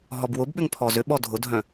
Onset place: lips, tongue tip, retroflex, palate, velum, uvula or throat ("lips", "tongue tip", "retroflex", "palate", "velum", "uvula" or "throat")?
throat